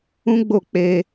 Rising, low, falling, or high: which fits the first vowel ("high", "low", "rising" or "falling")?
high